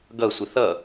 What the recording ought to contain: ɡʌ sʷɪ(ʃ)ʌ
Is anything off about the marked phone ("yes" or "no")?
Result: yes